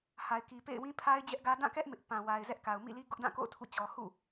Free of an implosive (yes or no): yes